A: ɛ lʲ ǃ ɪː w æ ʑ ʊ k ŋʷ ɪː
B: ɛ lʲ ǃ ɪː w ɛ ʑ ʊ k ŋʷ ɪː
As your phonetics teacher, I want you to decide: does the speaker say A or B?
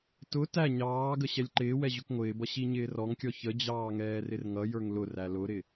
B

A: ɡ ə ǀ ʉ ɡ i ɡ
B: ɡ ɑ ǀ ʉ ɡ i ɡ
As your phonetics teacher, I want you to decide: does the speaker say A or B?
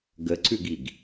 A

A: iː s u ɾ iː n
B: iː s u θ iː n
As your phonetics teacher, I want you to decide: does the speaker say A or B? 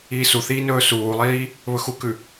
B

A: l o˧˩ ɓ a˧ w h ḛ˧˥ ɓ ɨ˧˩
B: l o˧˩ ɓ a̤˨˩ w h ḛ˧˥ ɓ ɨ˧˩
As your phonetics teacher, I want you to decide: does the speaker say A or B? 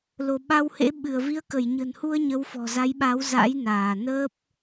A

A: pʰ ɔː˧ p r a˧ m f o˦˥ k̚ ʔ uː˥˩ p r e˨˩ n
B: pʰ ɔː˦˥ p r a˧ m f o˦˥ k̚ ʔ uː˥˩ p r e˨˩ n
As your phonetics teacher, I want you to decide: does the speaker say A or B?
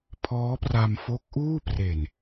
B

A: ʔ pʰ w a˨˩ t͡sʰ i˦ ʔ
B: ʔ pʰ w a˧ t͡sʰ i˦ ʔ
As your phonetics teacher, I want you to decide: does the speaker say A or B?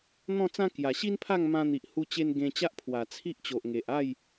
A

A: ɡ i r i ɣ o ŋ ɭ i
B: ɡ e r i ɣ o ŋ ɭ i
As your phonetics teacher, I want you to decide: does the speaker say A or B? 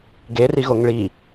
B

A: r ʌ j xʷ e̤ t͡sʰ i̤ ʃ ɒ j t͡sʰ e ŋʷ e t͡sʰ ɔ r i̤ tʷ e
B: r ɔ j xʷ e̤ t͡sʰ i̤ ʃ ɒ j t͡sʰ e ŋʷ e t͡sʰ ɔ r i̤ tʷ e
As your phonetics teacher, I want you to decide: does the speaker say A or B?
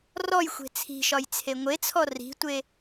B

